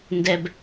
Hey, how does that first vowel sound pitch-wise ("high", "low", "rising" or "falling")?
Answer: high